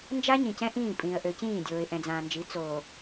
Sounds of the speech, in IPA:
nd͡ʒa˦ɲĩ˨cɛ̃˦ ʔĩː˦˨ pʼĩː˨ə̯ʔø˨cĩː˦˨dʲoː˨ɪ̯ ʔɛ̃˨d͡zãː˨nd͡ʒi˨˦ t͡soː˨

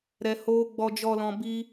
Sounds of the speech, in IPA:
ɾɛ˨hoː˧ ɡ͡bɔ˨d͡ʒɔ˨lɔ̃˨ bi˦

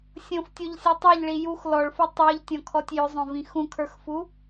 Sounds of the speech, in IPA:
sʲõftʲoʎsʲɔ tˤɛʎɭi jux lɔɭfu tˤə˞ʎtʲɔ̃kʰɔtʲ jʏzˤõvĩ xũkʰə˞xfu

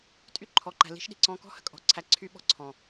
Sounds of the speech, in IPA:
tʼy˦ǃʰɔ˨ǃæ̤˨ li̤˦ʃɗi̤˨ǀɔ̃˦ kɔ̤˦hə̤˦kʼɔ̤˨ǀʰæ˨ ǀʰy˦ɓɔ̤˦ ǀʰɔ̃˨

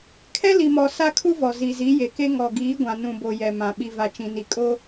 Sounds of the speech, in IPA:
kʰɛ˦li˨mɔ˨ sa˦kʰu˦vɔ˨ zi˨zi˨˦je˨ke˦ ŋɔ˨ɡiː˨˦ɡʷã˨ nũ˨bo˨ jɛ˨mã˨ ɓi˨va˨t͡ʃĩ˨ni˨ kʼo˦

